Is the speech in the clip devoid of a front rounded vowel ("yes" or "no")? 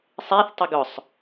no